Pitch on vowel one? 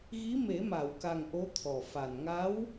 rising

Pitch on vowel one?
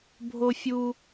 high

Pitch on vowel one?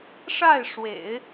falling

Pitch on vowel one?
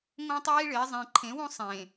high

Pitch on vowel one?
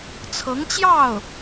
rising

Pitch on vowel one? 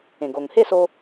low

